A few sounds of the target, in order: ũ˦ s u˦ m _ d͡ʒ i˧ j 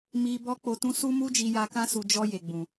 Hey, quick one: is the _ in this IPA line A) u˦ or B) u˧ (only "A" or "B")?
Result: A